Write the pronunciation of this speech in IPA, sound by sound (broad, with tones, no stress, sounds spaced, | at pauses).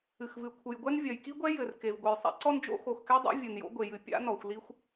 ɨ˩ x v ɨ˩ kʷʰ ɨ˩ j ɡʷ ɛ˥ n vʲ ɐ˩ j k i˥ ɡʷ ɛ˥ j ɘ˩ r k e˩ v ɡʷ ɘ˩ j sˤ ɛ̰˥ ǀ ɔ˥ n d͡ʒ o̰˥ x o˩ x k ɛ˥ dˤ a̰˥ vʲ ɨ˩ n j o̰˥ ɡʷ e˩ j ɨ˩ pʲ a̰˥ n ɔ˩ xʷ l i˥ xʷ